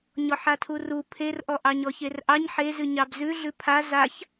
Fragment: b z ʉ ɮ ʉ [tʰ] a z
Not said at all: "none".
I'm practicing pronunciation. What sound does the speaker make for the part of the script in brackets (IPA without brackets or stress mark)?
pʰ